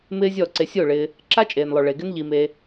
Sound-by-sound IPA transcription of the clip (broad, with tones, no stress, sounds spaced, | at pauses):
m ɪː˦ zʲ ɔ˦˨ ǀ e˧ sʲ o˦˨ ɭ ɪː˧ | ǁ a˦ t͡ʃʼ eː˨ n lˠ o˨ ɭ e˨ ɡ ɪ˦ n ʎ i˧ m eː˧